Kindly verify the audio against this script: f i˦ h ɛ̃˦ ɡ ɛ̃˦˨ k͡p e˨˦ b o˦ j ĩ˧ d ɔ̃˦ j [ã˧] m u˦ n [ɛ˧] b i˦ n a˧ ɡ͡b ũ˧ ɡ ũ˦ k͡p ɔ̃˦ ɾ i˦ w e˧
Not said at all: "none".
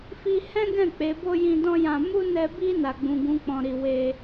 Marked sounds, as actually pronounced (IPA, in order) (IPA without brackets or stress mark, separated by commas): ã˧, ɛ˧